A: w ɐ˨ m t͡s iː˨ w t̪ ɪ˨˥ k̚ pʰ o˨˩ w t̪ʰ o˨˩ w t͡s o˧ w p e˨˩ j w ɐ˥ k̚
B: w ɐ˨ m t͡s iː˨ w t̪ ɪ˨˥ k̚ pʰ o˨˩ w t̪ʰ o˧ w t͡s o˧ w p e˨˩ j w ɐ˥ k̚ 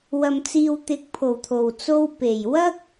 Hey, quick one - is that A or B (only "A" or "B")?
A